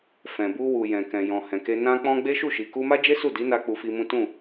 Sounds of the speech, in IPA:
fɛ̃˨bu˧wu˨ jɛ̃˨kɛ̃˨ jɔ̃˨hɛ̃˨ke˧ nã˧k͡pɔ̃˧ ɡ͡be˦ʃu˦˨ʃi˨ ku˧ma˦d͡ʒe˦ su˦˨di˨˦na˧ k͡pu˧fi˧mũ˦ tũ˦˨

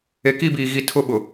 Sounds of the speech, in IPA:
e˨ki˦˨biː˨ɣi˨ tʰʊ˦ɓʊ˨

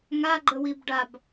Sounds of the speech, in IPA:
ŋa ɡ͡ǃəwibɖab

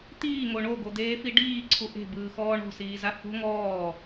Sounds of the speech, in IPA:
t̪iːŋo ɳoɡod̪eːfi ɖiːǀʰu ʔe̤bɯːxɔː ɳo̤siːza ho̤ ŋɔː

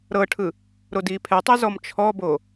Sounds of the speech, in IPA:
ɾɤʈʰɯ | ɾodiːpʰɛtˤe zɔmt͡ʃʰɔbo

